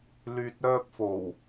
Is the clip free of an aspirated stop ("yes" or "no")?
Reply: yes